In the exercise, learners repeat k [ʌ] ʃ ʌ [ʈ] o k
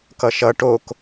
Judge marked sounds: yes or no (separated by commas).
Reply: yes, yes